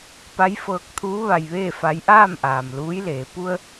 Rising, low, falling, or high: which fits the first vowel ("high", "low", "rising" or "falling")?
rising